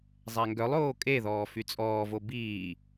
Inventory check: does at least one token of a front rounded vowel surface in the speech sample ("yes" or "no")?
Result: yes